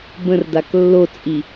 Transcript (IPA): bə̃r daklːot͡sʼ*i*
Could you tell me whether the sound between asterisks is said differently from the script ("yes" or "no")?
no